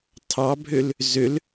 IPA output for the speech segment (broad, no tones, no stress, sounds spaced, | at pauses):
tʰ ɑ bʱ ø l | z ø l